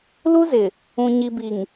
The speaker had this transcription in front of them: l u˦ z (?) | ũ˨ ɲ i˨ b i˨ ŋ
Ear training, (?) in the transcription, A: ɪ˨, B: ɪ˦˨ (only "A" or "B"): A